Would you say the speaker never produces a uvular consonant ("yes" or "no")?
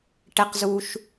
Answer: no